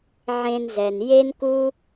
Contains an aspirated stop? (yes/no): no